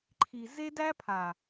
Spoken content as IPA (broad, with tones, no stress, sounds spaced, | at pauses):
ǃʰ i˨ z e˦ d æ˦ pʰ a˨